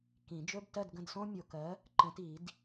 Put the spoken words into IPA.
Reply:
kĩ˨˩˦ d͡ʒɵ˧˥˧btɜ˥˨dɡə̃˥˨dsõ˥ mʲo˨kɜ˨˥ | ǃə̃˨˥ti˨˩˦d

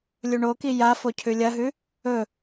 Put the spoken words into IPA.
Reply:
lʲuɳoki ja focʰʉlʲɐɦʉ | ɵ

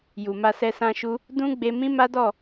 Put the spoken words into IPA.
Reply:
ju˨ma˧sɛ˧ sã˧ʃu˧ | dũ˦ɡ͡be˧mĩ˦ma˦ dɔ˦˨

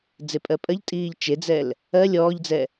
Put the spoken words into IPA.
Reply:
d͡zepʼɜpʼɜʎtʼiːʎ t͡ʃed͡zɛl | ɜ lʲɔːʎd͡zɛ

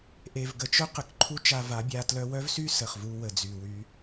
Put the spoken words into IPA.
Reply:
ʔe˨vɡə˨t͡ʃœ˦ qə˨kǃʰu˦t͡ʃa˧va˨˦ bʲa˧ tlœ˧wœ˦vsy˦ sə˨χvu˧ wə˨d͡zy˨wy˧

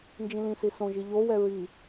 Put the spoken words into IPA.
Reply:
nd͡ʒĩlĩsi sõʒi ʎowɛ ɹi

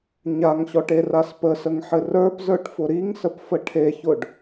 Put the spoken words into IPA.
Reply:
ɲaŋɕɔʈeras pəsəŋħɘ rə˞pzə˞ʈfʊ ɾiŋsəpfə ʈʰeçʊɖ

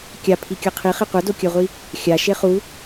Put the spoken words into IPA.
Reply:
kʲapʰikʲʌ qʰiχe qʷʌdokʲɜʁʷi | xʲaʃe χu

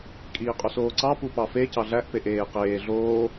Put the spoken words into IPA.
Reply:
kʼiːqʼusoːǀɑ pupɑfe cɑɮæʔ peʔeː qeː ɮoː

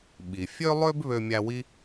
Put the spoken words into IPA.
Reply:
ɓi˩ fʲø˥lˠø˥b βø˧mʲæ˧ wi˥

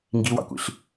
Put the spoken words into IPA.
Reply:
ŋɡiwɑ̰kʷḭɬ

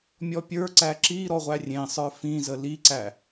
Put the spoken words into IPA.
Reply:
mʲɔpʲə˞ǀæ ǁi ɾɔʁʷærʲẽsˤə˞ fĩzə liǀæ

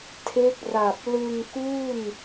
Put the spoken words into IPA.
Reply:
tʰe˦˥k̚ra˨˩p̚ lɯ˧ŋkuː˥˩n

